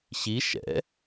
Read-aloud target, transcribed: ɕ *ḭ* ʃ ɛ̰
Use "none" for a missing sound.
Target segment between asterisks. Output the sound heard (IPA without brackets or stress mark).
i